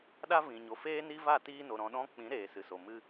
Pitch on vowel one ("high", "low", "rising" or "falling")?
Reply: high